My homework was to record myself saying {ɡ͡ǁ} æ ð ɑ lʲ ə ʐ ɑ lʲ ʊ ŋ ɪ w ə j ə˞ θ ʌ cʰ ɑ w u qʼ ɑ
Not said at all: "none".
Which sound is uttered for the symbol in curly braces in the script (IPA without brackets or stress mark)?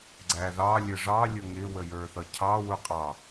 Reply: ɡ͡ǀ